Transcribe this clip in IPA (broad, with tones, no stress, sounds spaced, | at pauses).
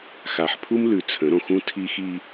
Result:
x a˨ ħ pʰ u˦ m l ʉ˨ t͡sʰ ə̃˨˦ ɾ õ˨ x ũ˦ tʰ i˦ x i˦